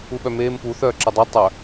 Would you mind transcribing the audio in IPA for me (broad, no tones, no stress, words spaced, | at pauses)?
uɓœmeːmpu θœːǁɪdˤœ tˤœ